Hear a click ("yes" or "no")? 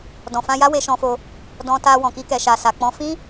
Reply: no